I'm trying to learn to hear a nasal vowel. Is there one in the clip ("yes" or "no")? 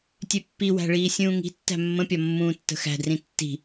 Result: yes